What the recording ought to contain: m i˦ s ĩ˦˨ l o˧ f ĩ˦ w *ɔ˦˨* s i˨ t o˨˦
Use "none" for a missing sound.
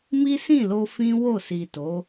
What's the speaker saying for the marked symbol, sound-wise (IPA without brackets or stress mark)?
o˦˨